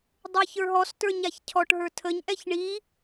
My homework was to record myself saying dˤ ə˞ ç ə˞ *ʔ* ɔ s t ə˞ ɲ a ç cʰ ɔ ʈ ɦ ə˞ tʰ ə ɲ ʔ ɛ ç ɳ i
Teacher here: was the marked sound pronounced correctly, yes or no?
no